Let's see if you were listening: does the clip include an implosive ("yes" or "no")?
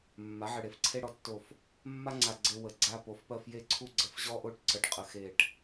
no